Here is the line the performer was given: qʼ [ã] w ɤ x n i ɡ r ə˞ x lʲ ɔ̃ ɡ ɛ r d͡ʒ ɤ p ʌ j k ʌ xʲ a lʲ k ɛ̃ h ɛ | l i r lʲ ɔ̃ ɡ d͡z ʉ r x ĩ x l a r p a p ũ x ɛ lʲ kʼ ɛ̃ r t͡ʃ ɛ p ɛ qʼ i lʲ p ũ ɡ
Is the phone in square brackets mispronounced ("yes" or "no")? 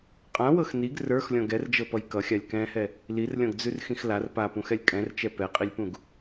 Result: no